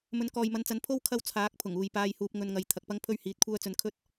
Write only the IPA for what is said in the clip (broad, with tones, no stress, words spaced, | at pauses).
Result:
mɵ˨˧nkɔː˨jmɐ˨˧nt͡sɐ˨˥n pʰo˥w kʰɐ˧w t͡sʰaː˨˥k̚pʰʊ˨˩ŋ uː˨jpaː˧jhuː˧p̚ ŋɵ˧nŋɐ˧j t̪ʰɐ˨k̚pɐ˥ŋ pʰɵ˥ɥhiː˧t̚kʷʰœː˥ t͡sɵ˥n kʰɵ˥t̚